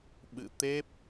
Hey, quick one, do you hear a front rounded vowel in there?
no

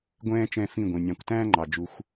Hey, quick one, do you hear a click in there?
yes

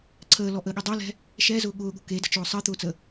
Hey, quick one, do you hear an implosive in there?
yes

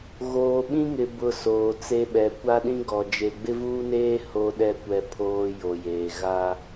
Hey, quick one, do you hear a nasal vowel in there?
yes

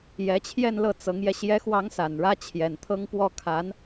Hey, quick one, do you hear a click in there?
no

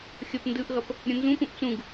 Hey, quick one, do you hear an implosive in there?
no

